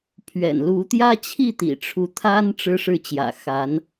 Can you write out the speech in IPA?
pʰɥɛ̰˨˩nlu˧˥ t̪jä˥ t͡ɕʰi˥˩t̪ḭ˨˩ʈ͡ʂʰu˧˥ t̪ʰa˥n ʈ͡ʂɻ̩˥ ʂɻ̩˥˩t͡ɕjä̰˨˩ xa˧˥n

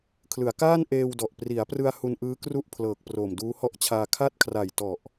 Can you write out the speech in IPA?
kʰlɯ˩˦a̯kaː˥˩nʔeː˧wdɔ˨˩ʔ pri˩˦a̯prɯ˧a̯ hu˧nʔɯː˦˥kru˥˩ʔpʰlɤː˨˩k̚ proː˨˩mduː˦˥hɔ˥˩ʔt͡ɕʰaː˧ kʰa˥˩t̚kʰra˨˩jtɔ˨˩ʔ

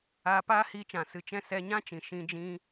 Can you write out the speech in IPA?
aː˧paː˦hiː˧t͡ʃã˨ sɨ˧t͡ʃɛ̃˦ sɛ˧ɲã˦t͡ʃĩ˨ ʃĩ˧d͡ʒĩ˧

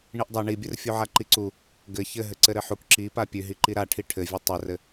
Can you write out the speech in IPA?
ɳiʔdˤa ɳibʲɘr fʲuʕaǃiǀu | ɡɘ çɘ ɦɘǀɘɾɘħuk ǁi papʲʉɦiǃi ɾaʈʰi ʈʰɘvʲʉ tˤɘrɘ

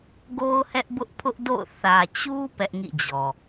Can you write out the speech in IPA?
ɡo˦ʊ̯hɛ˦ʔbʊ˦ʔ pʰʊ˦ʔdo̰˦˨ʊ̯ θä˨t͡ɕu˦ pɛ˦ʔŋḭ˦˨d͡ʑɔ˨

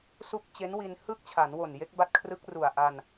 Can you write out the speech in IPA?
su˥˩k̚ t͡ɕe˦˥nwi˧nhɯ˥˩k̚t͡ɕʰa˩˦n wo˨˩nje˦˥k̚ ba˦˥t̚kʰrɯ˦˥k̚ru˨˩a̯ʔa˧n

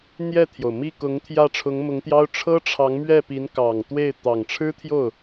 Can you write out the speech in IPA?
n̪jɛ˥˩t̪ʰjo˩ʊ̯mi˥˩kʊ˧˥ŋ t̪ʰjä˥˩ʈ͡ʂʰʊ˧˥ŋmʊ˧˥ŋt̪jɑ˥ʊ̯ ʈ͡ʂʰɤ˥ʈ͡ʂʰɑ˧˥ŋmɥɛ˥˩ pi˧˥nkɑ˨˩ŋ t̪we˥˩ɪ̯ t̪ɑ˨˩ŋʈ͡ʂʰɻ̩˥t̪ʰjo˥˩ʊ̯

